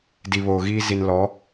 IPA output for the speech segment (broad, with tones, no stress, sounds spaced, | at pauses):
d i˨ β oː˨ ɣ iː˦ z i˨ n l ɔ˨˦